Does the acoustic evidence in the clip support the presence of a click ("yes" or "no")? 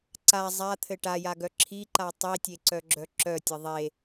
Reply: yes